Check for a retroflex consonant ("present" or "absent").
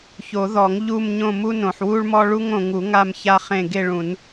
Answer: present